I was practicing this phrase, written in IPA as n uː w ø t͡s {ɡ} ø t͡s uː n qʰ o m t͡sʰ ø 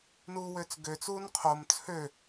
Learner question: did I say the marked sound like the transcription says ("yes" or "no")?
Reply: yes